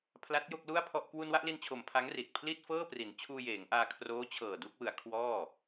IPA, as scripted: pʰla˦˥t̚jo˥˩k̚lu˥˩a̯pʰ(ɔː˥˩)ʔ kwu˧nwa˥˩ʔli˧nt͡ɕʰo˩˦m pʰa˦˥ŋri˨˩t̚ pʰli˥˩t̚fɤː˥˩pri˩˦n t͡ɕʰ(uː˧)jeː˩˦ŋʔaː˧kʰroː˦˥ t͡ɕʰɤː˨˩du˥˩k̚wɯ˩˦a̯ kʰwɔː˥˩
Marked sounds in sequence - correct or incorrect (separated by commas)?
incorrect, correct